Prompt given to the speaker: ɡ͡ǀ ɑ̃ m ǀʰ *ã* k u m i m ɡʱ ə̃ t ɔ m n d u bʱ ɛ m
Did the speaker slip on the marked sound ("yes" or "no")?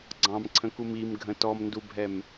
yes